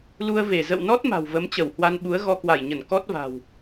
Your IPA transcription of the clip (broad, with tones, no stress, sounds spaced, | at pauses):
l u˧ ə̯ v e˧˩ z ə̰˧˨ w n ɔ˦˥ t̚ m a̤˨˩ w v ə˨˦ m t͡ɕ ə˧˩ w h w a˧ n ɓ u˨˦ ə̯ ɣ ɔ˧ k w a˧˩ j ɲ ə˧˩ n k ɔ˦˥ t̚ v a̤˨˩ w